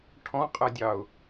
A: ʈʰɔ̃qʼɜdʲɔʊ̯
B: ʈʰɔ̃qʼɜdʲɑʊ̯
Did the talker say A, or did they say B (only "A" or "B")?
B